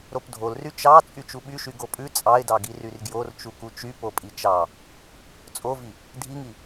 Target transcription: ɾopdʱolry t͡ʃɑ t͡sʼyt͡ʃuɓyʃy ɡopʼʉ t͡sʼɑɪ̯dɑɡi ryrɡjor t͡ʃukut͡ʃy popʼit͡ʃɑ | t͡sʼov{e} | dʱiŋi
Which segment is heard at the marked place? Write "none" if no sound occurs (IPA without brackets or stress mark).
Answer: i